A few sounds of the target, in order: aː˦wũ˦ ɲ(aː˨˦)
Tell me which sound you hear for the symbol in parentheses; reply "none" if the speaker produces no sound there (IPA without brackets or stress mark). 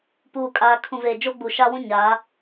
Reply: aː˨˦